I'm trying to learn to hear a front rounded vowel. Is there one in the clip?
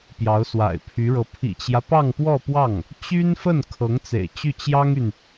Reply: yes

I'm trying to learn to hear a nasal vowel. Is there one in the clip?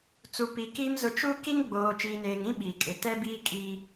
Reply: yes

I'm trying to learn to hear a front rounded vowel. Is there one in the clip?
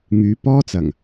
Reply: yes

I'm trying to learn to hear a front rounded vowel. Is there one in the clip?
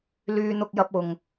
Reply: yes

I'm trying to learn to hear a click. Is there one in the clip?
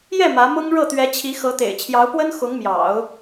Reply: no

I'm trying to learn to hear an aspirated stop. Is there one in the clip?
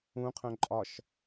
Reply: yes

